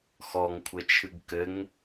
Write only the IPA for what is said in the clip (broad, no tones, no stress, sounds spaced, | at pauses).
x ɔ ŋ kʷʰ ɘ t͡ʃʰ ɨ ɡ k ɘ ŋ